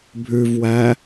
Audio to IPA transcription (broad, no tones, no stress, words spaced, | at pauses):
bʱʉvwæ